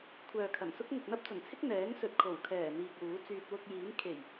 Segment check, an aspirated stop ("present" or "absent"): present